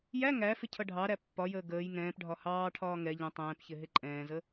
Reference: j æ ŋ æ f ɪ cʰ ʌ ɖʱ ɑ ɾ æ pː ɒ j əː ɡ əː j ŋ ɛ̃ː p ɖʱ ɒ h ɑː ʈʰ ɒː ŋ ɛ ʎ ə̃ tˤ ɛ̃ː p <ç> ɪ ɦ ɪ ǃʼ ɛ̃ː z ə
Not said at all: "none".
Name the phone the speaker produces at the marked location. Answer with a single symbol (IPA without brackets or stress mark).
ç